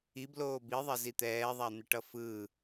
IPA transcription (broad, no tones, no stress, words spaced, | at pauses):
ibloː biðˤɛzi t̪ɛːðˤan̪ɛʈʌ fɯ